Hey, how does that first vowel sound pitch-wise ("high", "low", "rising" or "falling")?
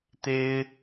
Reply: high